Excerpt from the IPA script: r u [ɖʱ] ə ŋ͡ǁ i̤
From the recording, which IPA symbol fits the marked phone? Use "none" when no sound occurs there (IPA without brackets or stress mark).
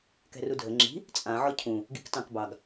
dʱ